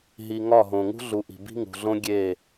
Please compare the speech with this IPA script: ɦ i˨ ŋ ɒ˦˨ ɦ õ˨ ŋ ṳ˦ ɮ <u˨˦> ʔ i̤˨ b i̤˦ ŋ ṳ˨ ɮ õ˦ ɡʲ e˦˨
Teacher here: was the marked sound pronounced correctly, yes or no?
no